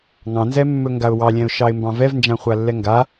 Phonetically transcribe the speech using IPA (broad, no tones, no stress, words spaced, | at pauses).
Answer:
ŋɑ̃nzɛmːɵ ŋɡaʊ̯wɑlʲɛ̃ʊ̯ ʃɑɪ̯mbɑ̃vɛvnd͡ʒã χʷalːɛŋɡa